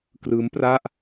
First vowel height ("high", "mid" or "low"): high